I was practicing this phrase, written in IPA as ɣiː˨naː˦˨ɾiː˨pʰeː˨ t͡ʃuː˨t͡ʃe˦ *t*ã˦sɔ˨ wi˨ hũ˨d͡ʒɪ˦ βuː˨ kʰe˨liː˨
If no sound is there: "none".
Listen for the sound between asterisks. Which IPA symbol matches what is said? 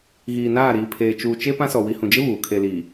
p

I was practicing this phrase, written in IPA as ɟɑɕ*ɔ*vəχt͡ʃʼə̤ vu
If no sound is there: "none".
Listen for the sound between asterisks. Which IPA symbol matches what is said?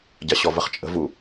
ɔ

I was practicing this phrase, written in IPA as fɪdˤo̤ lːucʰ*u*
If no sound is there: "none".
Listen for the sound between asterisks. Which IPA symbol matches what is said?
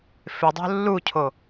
o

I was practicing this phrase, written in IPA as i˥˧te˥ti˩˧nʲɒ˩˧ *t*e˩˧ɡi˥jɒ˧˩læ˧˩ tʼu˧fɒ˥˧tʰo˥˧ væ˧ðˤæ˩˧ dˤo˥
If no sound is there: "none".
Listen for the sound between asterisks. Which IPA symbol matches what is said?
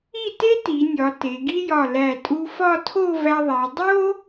t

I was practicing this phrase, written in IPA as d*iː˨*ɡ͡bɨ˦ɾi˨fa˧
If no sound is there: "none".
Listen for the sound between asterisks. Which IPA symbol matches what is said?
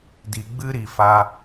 i˨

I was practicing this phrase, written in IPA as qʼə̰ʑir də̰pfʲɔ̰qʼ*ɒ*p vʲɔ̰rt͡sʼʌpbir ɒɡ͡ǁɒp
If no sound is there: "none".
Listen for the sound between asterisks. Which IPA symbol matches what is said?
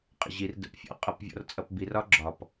ʌ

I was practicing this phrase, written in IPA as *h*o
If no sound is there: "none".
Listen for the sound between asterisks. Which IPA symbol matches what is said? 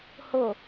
h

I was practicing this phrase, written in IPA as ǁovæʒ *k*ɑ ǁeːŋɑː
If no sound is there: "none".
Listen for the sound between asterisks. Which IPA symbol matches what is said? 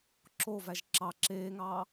ǁ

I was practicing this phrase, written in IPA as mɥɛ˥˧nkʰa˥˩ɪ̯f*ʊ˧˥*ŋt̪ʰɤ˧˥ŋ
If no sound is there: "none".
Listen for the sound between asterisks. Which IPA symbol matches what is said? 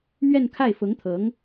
ʊ˧˥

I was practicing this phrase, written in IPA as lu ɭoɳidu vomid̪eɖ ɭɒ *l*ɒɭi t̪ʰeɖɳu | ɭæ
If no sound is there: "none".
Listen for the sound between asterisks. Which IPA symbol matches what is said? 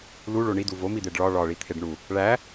ɭ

